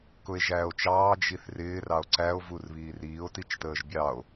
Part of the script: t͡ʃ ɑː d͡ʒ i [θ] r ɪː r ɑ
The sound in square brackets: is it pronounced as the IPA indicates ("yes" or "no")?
yes